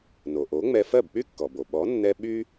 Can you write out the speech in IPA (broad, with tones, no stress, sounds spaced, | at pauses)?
n o˩ ʔ o˩˥ ŋ͡m ɛ˧ f ɜ˥˩ b k͡p y˥ kː ɔ˩ b o˩ ɓ ɔ˩˥ nː ɛ˧ ɓ y˥